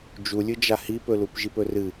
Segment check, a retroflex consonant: absent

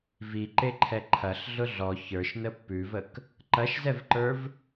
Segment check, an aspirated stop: present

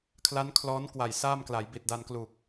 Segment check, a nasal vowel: absent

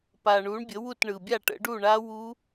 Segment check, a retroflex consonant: present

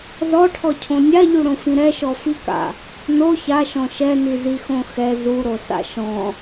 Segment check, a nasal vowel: present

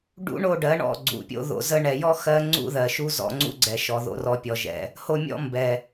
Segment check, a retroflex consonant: present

